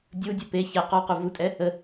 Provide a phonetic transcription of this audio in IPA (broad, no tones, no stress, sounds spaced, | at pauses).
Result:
dʲ u dʲ u p e ç ɛ q ɔ q u v u tʼ ɛ | ə